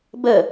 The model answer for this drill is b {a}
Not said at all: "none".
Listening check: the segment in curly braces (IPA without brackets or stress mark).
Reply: ə